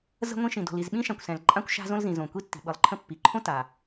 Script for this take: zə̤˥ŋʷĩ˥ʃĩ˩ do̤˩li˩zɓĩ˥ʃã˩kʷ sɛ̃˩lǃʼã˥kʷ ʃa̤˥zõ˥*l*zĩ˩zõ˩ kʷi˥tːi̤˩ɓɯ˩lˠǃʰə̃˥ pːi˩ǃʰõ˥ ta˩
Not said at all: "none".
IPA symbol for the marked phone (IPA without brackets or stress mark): l